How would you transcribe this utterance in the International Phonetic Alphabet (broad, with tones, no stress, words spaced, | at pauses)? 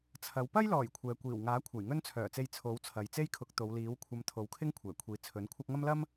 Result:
t͡sʰɐ˨˥w pɐ˥jlɔː˨˩j kʷʰɛː˨kʷiː˨˩wŋaː˨˥ kʷʰɐ˨˩jŋɵ˥n t͡sʰœː˨˩t͡se˧j t͡sʰo˨˥wt͡sʰɐ˨j t͡se˥jkʰʊ˨˥k̚t̪o˨˧wliː˨˥w kʷʰɐ˧mt̪ʰo˨˥wkʰɪ˥ŋ kʷʰɛː˨˩kʷʰiː˨ t͡sʰɵ˨˥nkʷʰɐ˥k̚ ŋɐ˥mlɐ˥m